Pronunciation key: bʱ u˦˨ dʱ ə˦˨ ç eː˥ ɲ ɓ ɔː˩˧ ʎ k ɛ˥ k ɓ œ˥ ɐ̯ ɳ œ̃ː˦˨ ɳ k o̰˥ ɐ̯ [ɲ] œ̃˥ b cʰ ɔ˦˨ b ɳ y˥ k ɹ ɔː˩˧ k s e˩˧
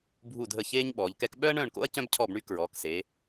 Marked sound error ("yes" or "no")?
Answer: yes